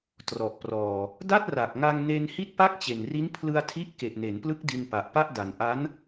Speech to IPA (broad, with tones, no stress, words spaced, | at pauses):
trɔ˨˩ʔprɔː˨˩ | da˥˩t̚ra˨˩k̚ŋa˧ŋne˧n hi˥˩t̚pa˥˩k̚t͡ɕe˨˩nri˦˥n pʰlɯ˧a̯tʰi˦˥ʔke˨˩ʔ ne˩˦nplɯ˦˥k̚ di˧npa˨˩ʔpa˥˩ʔ da˨˩nʔa˦˥n